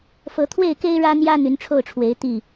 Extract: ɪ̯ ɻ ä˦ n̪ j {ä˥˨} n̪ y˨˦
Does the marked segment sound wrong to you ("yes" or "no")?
yes